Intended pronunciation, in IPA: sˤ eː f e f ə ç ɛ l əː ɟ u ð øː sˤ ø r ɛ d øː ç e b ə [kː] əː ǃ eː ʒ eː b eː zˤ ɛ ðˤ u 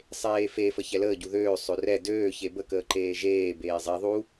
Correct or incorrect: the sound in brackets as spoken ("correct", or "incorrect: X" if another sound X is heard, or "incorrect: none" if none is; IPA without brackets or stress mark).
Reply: incorrect: k